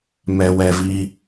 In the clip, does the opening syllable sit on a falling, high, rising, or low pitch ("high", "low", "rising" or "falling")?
low